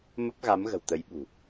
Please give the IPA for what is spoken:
m ə˦˥ p̚ ɣ a˨˦ m ɣ ə̤˨˩ w t̪ ə˨˦ j ɓ ṳ˨˩

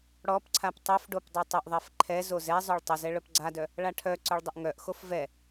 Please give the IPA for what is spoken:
ɽ ɔ p ǀʰ a p tˤ œ f ɖ o p dˤ u tˤ ə ʔ ðˤ ɛ f ǃʰ ɛ z o z ɛ zˤ œ ɭ tˤ ə z ɛ ɭ œ p ɡ͡ǀ a d œ | ɭ a ʈʰ œ ǀ œ ɭ dˤ ə ʔ ŋ œ ʔ x o f v ɛ

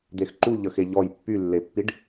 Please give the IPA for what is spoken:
d̪ e x ǃ u ʎ ə x e ʎ ɔ j pː y lː e pː i ɖ

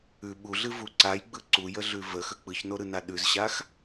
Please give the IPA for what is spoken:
ʉ ɓ u ɮ ɨ v u ǀ a j ɡ͡b ɯ ǀ u j ə ɮ ʉ v ə x ə k͡p ɯ ç n o ɾ ɯ n a ɗ ʉ z ɕ a x

